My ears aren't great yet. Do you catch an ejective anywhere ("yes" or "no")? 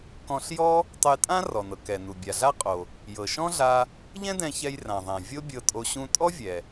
yes